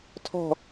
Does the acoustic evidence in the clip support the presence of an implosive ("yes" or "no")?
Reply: no